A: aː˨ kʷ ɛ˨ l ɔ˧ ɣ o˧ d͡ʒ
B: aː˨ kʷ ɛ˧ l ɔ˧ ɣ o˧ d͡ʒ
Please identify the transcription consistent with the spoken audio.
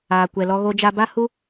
A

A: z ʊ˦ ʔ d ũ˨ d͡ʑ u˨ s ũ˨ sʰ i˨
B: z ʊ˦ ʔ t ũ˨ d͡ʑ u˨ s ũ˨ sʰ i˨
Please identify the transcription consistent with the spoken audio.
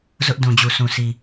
A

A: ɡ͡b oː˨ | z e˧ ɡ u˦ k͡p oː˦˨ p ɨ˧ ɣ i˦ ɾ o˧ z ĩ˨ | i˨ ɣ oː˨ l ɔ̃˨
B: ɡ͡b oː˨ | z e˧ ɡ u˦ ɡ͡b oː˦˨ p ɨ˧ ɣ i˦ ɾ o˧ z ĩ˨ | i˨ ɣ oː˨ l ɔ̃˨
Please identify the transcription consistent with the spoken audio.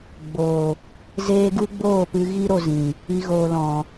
B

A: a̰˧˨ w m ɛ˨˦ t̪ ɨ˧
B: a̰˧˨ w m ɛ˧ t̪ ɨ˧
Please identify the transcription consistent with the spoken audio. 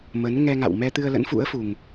B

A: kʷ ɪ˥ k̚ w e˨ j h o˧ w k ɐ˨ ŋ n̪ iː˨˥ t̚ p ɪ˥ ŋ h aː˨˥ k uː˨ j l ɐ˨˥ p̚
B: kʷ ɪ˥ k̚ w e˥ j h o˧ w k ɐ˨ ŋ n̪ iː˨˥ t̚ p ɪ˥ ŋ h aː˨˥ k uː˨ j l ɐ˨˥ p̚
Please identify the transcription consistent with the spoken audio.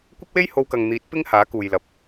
B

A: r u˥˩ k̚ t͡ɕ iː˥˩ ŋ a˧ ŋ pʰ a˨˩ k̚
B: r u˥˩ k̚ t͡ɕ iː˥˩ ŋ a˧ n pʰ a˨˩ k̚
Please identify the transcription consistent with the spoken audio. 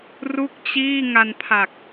B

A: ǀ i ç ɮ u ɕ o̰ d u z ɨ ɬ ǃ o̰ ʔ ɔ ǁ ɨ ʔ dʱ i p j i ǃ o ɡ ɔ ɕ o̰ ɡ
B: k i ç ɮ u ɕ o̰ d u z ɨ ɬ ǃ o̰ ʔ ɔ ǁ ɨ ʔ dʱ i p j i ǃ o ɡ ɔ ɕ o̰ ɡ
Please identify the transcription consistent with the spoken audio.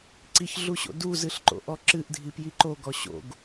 A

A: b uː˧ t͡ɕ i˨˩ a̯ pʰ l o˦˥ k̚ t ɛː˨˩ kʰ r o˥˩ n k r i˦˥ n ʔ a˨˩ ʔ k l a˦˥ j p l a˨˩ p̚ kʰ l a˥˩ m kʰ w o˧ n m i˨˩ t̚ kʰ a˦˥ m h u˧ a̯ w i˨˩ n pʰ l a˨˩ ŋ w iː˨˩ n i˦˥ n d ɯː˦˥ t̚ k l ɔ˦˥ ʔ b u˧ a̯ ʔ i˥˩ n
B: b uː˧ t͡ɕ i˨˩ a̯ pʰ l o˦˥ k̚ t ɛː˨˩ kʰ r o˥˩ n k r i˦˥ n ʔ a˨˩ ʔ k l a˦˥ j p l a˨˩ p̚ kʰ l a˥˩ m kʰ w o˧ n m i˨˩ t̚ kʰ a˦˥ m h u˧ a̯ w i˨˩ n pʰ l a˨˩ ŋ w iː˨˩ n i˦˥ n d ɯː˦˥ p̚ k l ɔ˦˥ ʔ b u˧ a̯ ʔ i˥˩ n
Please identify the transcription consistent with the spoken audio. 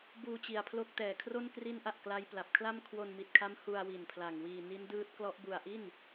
A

